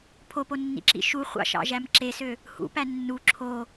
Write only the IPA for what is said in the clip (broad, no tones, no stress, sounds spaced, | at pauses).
pʰ o p o nː ḭ ǁ ḭ ʃ u χʷ ɑ̰ ʃ ɑ̰ ʒ æ m ǁ e s ø | h ṵ p æ nː u ǁʰ o